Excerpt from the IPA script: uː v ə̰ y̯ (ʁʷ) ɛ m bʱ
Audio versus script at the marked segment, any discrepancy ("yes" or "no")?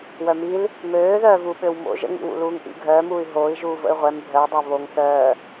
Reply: no